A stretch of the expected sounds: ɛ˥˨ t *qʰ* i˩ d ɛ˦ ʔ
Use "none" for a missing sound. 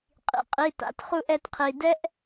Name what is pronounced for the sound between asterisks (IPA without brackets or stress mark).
qʰ